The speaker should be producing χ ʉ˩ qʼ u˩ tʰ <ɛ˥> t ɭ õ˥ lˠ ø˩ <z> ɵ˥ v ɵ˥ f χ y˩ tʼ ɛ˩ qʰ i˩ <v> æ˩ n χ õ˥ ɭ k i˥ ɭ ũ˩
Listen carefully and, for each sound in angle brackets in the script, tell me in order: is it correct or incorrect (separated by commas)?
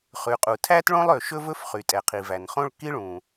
incorrect, incorrect, correct